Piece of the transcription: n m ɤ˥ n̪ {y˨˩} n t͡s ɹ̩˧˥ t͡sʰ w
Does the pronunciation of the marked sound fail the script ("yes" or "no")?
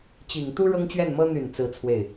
no